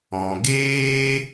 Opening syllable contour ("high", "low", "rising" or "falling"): low